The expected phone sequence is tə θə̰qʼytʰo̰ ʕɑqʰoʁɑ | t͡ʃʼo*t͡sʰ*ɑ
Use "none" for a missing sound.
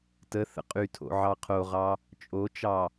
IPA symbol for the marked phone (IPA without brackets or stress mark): t͡ʃ